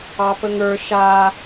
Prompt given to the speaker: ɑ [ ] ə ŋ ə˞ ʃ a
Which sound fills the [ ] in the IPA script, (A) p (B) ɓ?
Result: A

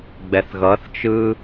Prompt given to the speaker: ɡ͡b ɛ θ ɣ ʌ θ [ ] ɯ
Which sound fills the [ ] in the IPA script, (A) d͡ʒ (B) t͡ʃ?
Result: B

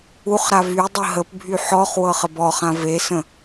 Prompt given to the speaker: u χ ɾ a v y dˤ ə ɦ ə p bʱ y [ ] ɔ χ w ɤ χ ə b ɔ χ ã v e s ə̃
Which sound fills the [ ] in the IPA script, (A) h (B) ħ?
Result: B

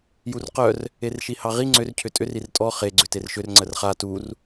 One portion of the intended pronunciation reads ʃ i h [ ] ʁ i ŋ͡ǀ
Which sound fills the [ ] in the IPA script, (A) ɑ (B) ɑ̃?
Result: A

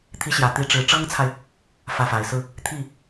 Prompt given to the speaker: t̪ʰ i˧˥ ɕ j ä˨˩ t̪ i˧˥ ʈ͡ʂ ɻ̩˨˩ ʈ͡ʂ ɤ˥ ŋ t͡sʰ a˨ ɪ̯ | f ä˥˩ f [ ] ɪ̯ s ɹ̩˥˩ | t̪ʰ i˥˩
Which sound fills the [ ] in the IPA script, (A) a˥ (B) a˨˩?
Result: B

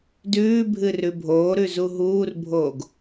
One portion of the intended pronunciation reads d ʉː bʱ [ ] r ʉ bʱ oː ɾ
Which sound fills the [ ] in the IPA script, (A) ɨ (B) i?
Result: A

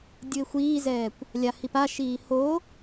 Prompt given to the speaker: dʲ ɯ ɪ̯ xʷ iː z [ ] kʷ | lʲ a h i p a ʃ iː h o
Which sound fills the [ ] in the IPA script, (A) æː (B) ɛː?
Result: B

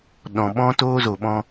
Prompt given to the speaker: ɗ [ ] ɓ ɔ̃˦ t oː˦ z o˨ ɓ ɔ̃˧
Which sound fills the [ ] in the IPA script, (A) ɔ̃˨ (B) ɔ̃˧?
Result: A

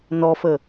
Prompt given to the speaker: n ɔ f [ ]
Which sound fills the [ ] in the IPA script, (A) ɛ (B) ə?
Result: B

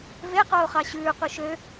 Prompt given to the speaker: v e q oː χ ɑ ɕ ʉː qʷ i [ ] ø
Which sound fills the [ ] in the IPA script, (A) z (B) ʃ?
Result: B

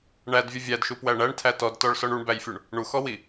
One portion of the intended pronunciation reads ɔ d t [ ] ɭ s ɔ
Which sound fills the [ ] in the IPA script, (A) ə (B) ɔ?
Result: B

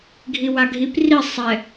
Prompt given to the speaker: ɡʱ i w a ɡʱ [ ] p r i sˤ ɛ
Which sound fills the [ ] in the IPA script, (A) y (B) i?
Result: B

